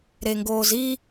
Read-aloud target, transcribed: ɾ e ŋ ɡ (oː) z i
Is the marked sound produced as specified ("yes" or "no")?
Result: yes